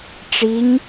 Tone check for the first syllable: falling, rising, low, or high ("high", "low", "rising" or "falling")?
rising